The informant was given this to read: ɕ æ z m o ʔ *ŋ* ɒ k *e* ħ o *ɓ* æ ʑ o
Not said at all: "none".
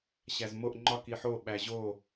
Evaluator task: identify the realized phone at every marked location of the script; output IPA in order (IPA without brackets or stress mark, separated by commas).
ŋ͡ǃ, i, ɓ